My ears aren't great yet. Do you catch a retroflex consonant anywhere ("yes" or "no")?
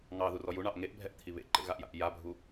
yes